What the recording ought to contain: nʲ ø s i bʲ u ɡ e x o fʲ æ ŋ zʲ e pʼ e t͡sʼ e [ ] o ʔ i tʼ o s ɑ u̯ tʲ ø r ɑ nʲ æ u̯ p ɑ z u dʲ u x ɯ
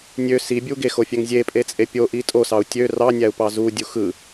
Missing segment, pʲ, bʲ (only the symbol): pʲ